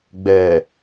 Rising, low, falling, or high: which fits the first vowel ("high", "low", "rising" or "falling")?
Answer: low